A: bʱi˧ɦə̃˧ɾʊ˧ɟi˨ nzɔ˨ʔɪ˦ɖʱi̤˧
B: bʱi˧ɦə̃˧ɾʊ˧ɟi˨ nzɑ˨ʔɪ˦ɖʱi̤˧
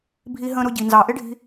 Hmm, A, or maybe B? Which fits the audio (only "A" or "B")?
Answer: B